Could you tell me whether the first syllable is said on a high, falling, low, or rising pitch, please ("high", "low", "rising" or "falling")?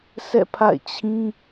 falling